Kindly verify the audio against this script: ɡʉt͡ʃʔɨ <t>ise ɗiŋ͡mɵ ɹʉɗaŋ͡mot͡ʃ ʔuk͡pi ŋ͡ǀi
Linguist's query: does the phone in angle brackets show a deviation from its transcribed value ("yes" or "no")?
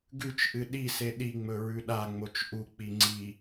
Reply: yes